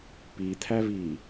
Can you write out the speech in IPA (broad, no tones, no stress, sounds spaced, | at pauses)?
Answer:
p i t̪ʰ æ v i